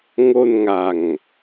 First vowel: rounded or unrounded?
rounded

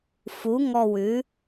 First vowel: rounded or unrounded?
rounded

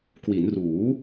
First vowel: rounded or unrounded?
unrounded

